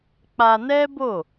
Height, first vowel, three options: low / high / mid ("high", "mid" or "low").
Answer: low